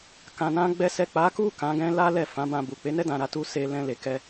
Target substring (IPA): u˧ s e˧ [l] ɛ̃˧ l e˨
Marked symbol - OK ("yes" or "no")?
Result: yes